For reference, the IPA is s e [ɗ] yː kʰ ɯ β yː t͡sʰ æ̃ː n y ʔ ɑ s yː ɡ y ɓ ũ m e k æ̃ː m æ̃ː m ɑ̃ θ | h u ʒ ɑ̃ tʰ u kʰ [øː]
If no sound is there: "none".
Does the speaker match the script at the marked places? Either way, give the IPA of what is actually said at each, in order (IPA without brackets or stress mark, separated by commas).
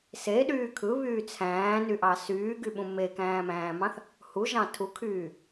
ɗ, yː